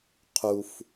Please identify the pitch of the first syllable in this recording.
low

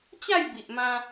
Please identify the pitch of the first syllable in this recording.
falling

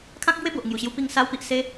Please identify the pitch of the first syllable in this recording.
high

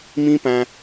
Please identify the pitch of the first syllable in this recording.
high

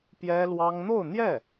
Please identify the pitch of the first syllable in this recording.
high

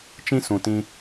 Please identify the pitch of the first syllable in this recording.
high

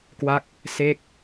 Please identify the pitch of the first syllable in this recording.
falling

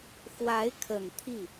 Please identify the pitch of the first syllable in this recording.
rising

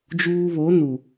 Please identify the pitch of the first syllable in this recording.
high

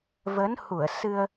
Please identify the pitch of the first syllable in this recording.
rising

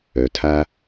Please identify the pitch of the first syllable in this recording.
low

